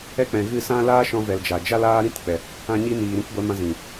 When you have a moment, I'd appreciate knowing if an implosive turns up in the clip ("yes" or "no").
no